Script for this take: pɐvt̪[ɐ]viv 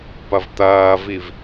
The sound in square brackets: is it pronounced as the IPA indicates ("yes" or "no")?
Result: no